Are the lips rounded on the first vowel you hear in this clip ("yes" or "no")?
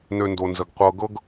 yes